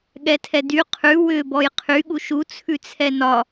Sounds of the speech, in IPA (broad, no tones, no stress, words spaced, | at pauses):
ɠɛtʰɛdy qʰʉ wʏ bɔjqʰy ɠuʃu t͡sʰʉt͡sʰɛnɒ